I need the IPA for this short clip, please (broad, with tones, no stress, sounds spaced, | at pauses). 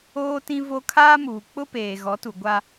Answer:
oː˦ t ĩ˦ v o˦ kʰ aː˦ m uː˨ k͡p ʊ˦ p eː˨ ɣ ɔ˨˦ t u˨ ɡʷ a˦